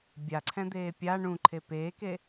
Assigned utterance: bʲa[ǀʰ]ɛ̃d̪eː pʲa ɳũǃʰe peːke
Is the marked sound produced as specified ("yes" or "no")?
yes